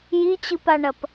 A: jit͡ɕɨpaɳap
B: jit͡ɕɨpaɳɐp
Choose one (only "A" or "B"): B